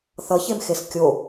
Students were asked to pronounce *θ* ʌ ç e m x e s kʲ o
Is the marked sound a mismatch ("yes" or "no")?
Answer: no